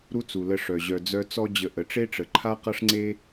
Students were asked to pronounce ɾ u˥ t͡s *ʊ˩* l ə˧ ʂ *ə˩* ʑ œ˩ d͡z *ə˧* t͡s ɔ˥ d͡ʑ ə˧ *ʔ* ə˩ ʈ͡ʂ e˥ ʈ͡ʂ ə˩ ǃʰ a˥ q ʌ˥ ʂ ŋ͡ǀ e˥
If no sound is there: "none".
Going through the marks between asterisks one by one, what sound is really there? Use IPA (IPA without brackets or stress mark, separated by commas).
u˩, œ˩, œ˧, ʔ